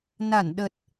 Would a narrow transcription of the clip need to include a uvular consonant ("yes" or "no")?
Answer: no